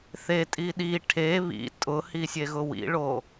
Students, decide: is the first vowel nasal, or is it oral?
oral